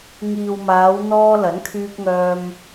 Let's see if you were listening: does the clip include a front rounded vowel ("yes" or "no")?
yes